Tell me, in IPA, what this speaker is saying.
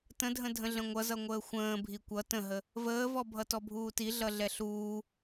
t ə̃ dʱ ə̃ dʱ ə̃ ɮ ə̃ ŋʷ ʌ z ʌ ŋʷ əː xʷ ə̃ː bʱ i kʷ ʌ t ə̃ ɦ ə | v əː v ɔ bʱ ʌ t ɔ bʱ uː t i ɮ ʌ ɮ ɛ ɬ uː

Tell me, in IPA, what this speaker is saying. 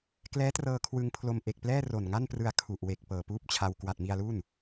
k l ɛː˦˥ t r ɤː˧ kʰ w ɯ˧ ŋ pʰ l o˧ m ʔ e˨˩ k̚ p l ɛː˥˩ r o˨˩ n ŋ a˥˩ n p r ɯ˧ a̯ kʰ u˨˩ ʔ w e˨˩ k̚ p ɤː˨˩ p uː˥˩ p̚ t͡ɕʰ a˧ w k w a˨˩ t̚ m i˧ a̯ l u˥˩ n

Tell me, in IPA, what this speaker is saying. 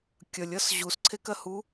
kʲ ʌ lʲ ʌ s ʑ u s ǀʰ e k ɜ h u

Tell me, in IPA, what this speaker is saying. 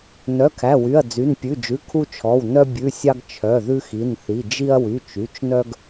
n œ˩˧˩ kʰ æ˩˧˩ w y˩˧˩ ɐ̯ d͡z y˩˧˩ n pʲ ʉ˩˧˩ d͡ʒ ʉ˩˧˩ kʰ u˧ t͡ʃʰ ɔ˩˧˩ w n œ˧ bʲ ʉ˩˧˩ sʲ ɑ˧ ɡ t͡ʃʰ œ˩˧˩ ð ʉ˧ x i˩˧˩ n θ i˩˧˩ d͡ʒ i˧ ɐ̯ w y˩˧˩ t͡ʃ y˩˧˩ t͡ʃ n œ˧ ɡ

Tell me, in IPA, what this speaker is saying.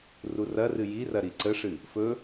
r u r ɐ r ɨ j i r ɐ ɾ i ǀ ə ʂ ɨ | f ɵ

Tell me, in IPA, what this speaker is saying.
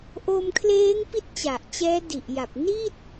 ʔ o˧ m kʰ l eː˦˥ ŋ p i˦˥ t̚ t͡ɕ a˨˩ ʔ t͡ɕ ɛː˦˥ d i˨˩ ʔ j a˨˩ p̚ n i˥˩ t̚

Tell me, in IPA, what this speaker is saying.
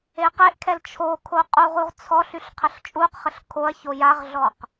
e q e ʔ kʰ ɛ l t͡ʃʰ o kʰ o qʼ u ʁ u ʁ t͡sʰ ɔ ɬ y ɬ qʰ ə ɬ t͡ʃʼ u q χ ə ɬ kʰ o ɐ̯ ç o j a ʁ ɮ ɔ q

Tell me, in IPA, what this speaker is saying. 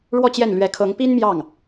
ɻ w ɔ˥˧ t͡ɕ j ɛ˥˩ n l ɥ ɛ˧˥ kʰ ɤ˧˥ ŋ p i˥ n m j ɑ˥˩ ŋ

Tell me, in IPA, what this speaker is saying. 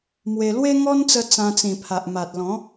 m w e˧ l w e˦ ŋ ɔ˦ n t͡s ə˧ t͡s ã˧ t͡s ĩ˨˩ pʰ a˨ ʔ m a˨ t̚ l ɔ̃˨˦

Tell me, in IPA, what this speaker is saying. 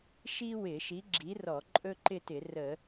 ʃ i˥ w ɪ˧˩˧ ʃ i˨˥ ɡ͡ǁ i˨˥ r ɔ˧˩˧ ǃʼ ɵ˥ ǃ ɪ˥˧ t ɪ˧˩˧ r ə˧˩˧

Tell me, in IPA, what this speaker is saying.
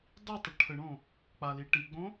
dˤ i tˤ ə ʈʰ ə ɳ õ | k͡p a l i ʈ i ɡ͡b õ

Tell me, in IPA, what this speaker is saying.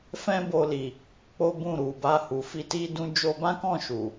f ɛ̃˦ b o˧ l i˨ | k͡p o˦ b ũ˦˨ ɾ u˨ b a˧ h u˨ f i˧ t i˦ d ũ˦ d͡ʒ o˧ b ã˦ k ɔ̃˦˨ ʃ u˨

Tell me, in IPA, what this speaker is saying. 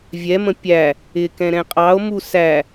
vʲ ɛ m ə̃ pʲ æ | ɪ k ɛ̃ ɾ ɛ̃ qʼ ɑ o̯ m u s æ

